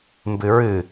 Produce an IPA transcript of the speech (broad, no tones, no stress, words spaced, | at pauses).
mbɨɹɨ